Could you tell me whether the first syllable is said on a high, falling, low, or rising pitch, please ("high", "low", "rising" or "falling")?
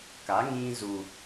rising